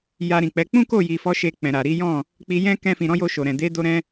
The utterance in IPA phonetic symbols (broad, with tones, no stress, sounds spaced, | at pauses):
j a˧ ɾ ĩ˨ k͡p ɛ˨˦ k͡p ũ˦ k o˦˨ j i˨ f ɔ˨˦ ʃ e˧ k͡p ɛ̃˨ ɾ a˨ ɾ i˨˦ j ɔ̃˦˨ | k͡p i˧ j ɛ̃˦ k ɛ̃˧ f ĩ˨ ɾ ɔ̃˨˦ j o˧ ʃ o˨ ɾ ɛ̃˨ d e˨˦ d o˧ ɾ ɛ̃˧